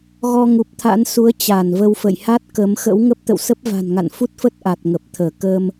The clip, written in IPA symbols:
ɣ ɔ˧ ŋ u˨˩ p̚ t̪ʰ a̰˧˥ n s u˨˦ ə̯ t͡ɕ a˧˩ n v ə˧ w f ə̰˧˨ j h a˦˥ t̚ k ə˨˦ m x ə̰˧˥ w ŋ ə˦˥ p̚ t̪ ə̰˧˨ w s ə˦˥ p̚ v a̤˨˩ n ŋ a̰˧˨ n f u˦˥ t̚ f ə˦˥ t̚ ʔ a˨˩ t̚ ŋ ə˨˩ p̚ t̪ʰ əː˧˩ k ə˧ m

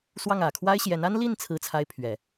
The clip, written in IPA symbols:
s w ɑ˥˩ ŋ ä˨˩ kʰ w a˥ ɪ̯ ɕ j ɛ˧˥ n a˥ n l i˥˩ n t͡sʰ ɹ̩˥ t͡sʰ a˥ ɪ̯ pʰ ɥ ɛ˨˩˦

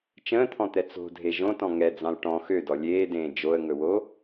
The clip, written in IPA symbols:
t͡ʃ ə̃ː t̪ʰ ɔ̃ t̪ ɛ t͡s o̤ dʱ e ʒ õ t ɔ̃ ŋ ɛ d͡z ɑ̃ l ʈ ɔ̃ x ø d ɔ lʲ eː d ẽː d͡ʒ o ə̯ ŋ ɵ w o

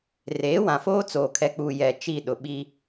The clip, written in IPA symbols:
r eː˨˦ w ã˨ f oː˦ t͡s oː˨ kʰ ɛ˨ k͡p uː˨ j ɛ˨ t͡ʃ i˦˨ ɗ ʊ˨ ɓ i˦

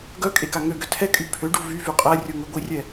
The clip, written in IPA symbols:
ɡ œ kʼ e k a ŋ ø ɡ ø tʰ ɛ kʼ y pʰ ø ɖ u v y v y qʼ ɛ rʲ u ŋ ø ɡʷ i rʲ ɛ

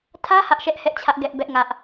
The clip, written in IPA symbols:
tʰ ä˦ h ä˦ ʔ ʃ ɛ˦ ʔ h ɛ˦ ʔ t͡ɕʰ ä˦ ʔ ɡ ɛ˦ ʔ b ɛ˦ ʔ ŋ ä˦ ʔ

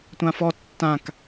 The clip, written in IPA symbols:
tʷ ã f ɔ tː ã k

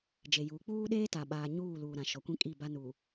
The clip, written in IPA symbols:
d͡ʒ e˨ j uː˨˦ k͡p uː˦ ɗ eː˦ t a˨ ɓ aː˦ ɲ uː˦˨ l uː˨ ɾ ã˨ ʃ ɔ˨ kʷ ĩ˦ kʼ i˦˨ b a˦ n u˨

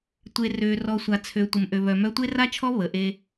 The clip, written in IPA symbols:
tʷ e˨ r ø˨ r ɔ˨ sʷ a˨ t͡sʰ ø˨ tʷ ə˨ m ʔ ø˨ β œ˨ m œ˦ tʷ e˦ r a˦ t͡ʃʰ ɔ˦ β ə˨ ʔ e˦

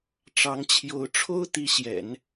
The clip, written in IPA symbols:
ʈ͡ʂ ɑ˧˥ ŋ t͡ɕʰ j o˧˥ ʊ̯ ʈ͡ʂʰ o˥ ʊ̯ t̪ i˧˥ ɕ j ɛ̰˨˩˦ n

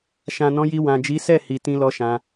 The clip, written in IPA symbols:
ʃ ã˨ n ɔ̃˨˦ j i˧ w ã˨ d͡ʒ i˨˦ s ɛ˦˨ h i˨ t ĩ˧ l ɔ˧ ʃ ã˧

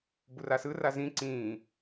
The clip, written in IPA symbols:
b u r a s ɯ r a z ĩ ǀ ĩː

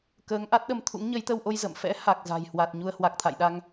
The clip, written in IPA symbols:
k əː˨˦ ŋ ʔ a˦˥ t̚ ɗ ə˧ m t̪ʰ ṵ˧˥ ŋ ɲ ə˨˦ j t̪ ə˧ w ʔ o˧ j z ə̰˧˨ m f ɛ̰˧˥ h a˨˩ k̚ z a̤˨˩ j h w a˨˩ t̚ ɲ u˧ ə̯ h w a˨˩ k̚ t̪ʰ a̰˧˨ j ɗ a˧ ŋ

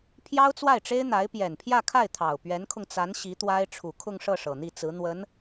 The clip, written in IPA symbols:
pʰ j ɑ˥ ʊ̯ t͡s w a˥˩ ɪ̯ ʈ͡ʂ e˥ ɪ̯ n̪ a˧˥ ɪ̯ p j ɛ˨˩ n pʰ j ä˥˧ kʰ a˥˩ ɪ̯ t̪ʰ ɑ˨˩ ʊ̯ p ɥ ɛ˧˥ n kʰ ʊ˧ ŋ t͡s a˧˥ n ɕ i˧˥ t̪ w a˥ ɪ̯ ʈ͡ʂʰ u˨˩ kʰ ʊ˥˧ ŋ ʂ ɤ˥˩ ʂ ɤ˨˩ n̪ i˥˩ t͡s ɹ̩˧˥ n̪ w ə˧˥ n

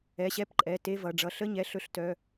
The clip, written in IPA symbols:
ɛ˩˧˩ ɕ ɛ˧˥˧ p ǃʼ ɛ˩˧˩ t e˧˥˧ v ʌ˩˧˩ ɖ͡ʐ ʌ˩˧˩ ɬ ə˧˥˧ ɲ ɛ˩˧˩ ɬ ɵ˧˥˧ ɬ t œ˩˧˩

